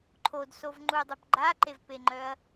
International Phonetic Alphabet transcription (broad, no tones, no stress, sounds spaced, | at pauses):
ǃʰ o d s o v ŋ͡ǃ u dˤ ə p ɡ͡ǃ a ǃ e v p e ŋ͡ǃ œ ɐ̯